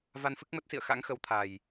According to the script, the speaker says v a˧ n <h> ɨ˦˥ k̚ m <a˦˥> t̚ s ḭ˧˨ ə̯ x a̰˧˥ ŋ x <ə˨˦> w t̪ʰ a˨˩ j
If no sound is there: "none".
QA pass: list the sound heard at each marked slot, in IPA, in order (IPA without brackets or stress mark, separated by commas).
f, ə˦˥, ə˨˦